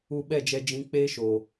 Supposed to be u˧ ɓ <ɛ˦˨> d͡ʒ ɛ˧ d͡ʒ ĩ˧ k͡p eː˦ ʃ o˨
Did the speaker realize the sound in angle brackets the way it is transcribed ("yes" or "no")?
yes